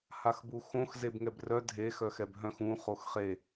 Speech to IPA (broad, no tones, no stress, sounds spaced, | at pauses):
h a x b u x õ x z e b ŋ ɛ b r œ dʱ e x œ x ɛ b ɦ œ̃ x ũ χ o x χ e